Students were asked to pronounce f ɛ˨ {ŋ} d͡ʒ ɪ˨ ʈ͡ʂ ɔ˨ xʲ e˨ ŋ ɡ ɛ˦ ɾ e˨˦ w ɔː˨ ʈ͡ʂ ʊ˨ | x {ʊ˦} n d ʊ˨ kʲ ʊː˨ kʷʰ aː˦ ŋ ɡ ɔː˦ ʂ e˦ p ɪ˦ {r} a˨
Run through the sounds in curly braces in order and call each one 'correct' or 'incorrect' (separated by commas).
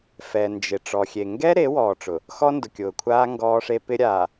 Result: incorrect, incorrect, incorrect